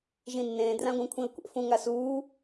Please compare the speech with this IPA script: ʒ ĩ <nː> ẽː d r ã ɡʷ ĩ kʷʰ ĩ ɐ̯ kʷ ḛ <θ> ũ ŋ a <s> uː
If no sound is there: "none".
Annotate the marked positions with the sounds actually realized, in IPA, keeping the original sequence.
nː, f, s

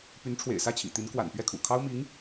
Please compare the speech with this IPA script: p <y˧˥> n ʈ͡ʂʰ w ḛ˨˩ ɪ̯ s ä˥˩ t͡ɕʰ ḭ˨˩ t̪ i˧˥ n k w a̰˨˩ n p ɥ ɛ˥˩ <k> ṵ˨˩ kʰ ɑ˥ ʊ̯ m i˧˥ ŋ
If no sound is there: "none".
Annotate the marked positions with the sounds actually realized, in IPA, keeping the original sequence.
y˧˥, kʰ

